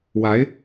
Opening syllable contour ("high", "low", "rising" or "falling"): rising